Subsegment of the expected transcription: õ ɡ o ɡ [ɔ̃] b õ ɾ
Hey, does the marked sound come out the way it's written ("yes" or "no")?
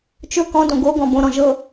yes